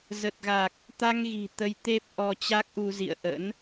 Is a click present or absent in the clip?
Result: absent